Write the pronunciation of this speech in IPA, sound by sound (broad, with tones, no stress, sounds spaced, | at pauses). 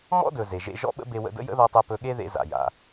m ɔ̰˥ d ɵ˩ z e˩ ʒ ḛ˧ ʒ ɔ̰˥ ɓ ə̰˥ b e˧ w ə̰˧ d ə̰˥ j ə̰˥ ð ɔ˧ tˤ e˧ p ɵ˧ ɠ e˥ ð ḛ˧ z a̰˩ j a̰˩